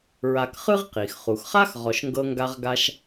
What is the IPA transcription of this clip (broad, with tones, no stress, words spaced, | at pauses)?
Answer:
ɹa˨k χɯ˥ʁqi˩x χu˩xχa˥x ʁɔ˨ʃŋɡɤ˦ŋɡa˦ʁɡa˦ʃ